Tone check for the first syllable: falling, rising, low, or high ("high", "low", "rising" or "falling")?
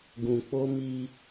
low